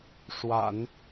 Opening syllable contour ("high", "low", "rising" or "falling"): low